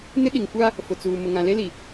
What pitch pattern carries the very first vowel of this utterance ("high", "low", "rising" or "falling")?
high